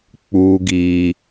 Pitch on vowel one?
high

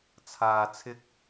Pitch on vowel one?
low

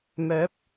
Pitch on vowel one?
rising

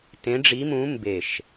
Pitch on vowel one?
rising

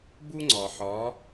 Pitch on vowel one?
high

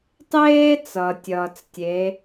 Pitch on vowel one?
high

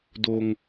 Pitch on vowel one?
low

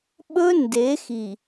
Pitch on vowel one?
high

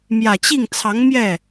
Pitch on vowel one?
low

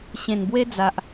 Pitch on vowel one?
low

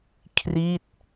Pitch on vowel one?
falling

